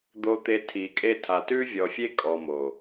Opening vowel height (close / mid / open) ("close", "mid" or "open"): mid